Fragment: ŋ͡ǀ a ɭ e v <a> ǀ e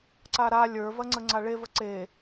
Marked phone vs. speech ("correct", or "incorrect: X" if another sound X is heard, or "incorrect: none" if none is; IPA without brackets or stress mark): incorrect: ə